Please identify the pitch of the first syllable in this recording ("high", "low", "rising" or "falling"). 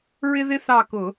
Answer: high